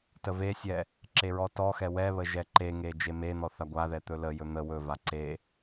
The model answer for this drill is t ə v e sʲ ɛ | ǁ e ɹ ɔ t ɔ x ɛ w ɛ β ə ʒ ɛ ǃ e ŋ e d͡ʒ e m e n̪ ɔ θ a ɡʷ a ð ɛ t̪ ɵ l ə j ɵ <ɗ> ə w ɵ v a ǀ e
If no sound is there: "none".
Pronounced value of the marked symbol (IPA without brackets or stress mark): n̪